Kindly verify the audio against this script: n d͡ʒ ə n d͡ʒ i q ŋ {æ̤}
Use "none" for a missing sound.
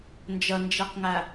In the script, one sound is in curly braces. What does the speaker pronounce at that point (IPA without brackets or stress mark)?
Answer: æ